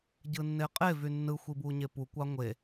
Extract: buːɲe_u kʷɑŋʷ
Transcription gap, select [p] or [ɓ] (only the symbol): p